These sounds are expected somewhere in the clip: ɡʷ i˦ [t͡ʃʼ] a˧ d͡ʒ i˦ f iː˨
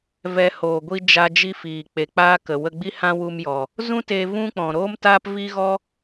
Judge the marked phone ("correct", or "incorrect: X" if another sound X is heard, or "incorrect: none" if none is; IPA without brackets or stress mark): incorrect: d͡ʒ